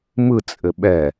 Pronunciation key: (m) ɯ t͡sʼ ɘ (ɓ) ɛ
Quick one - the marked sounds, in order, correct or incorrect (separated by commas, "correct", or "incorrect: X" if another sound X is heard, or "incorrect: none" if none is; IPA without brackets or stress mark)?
correct, correct